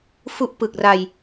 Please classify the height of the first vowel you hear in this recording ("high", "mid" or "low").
high